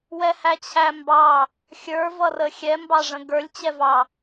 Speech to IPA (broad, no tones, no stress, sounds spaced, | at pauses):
w ɛ h æ t͡ɕʰ æ m b ɑ | xʲ ə˞ v ʌ r ə xʲ ɛ m b ɑ ʐ ə̃ ɡ ə˞ lʲ t͡ɕ ɛ v ɑ